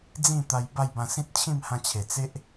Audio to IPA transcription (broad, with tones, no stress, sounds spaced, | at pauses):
d͡z ĩ˥˧ t̪ a˧ j b a˥˧ j b ã˧ s ĩ˦ t̚ t͡ɕʰ ĩ˥˧ m h ã˧ t͡ɕʰ e˨˩ t͡s e˦ ʔ